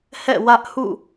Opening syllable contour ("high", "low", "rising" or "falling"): falling